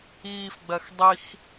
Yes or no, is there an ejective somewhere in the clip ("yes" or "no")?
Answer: no